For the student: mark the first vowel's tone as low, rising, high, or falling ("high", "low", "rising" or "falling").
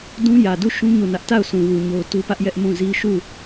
high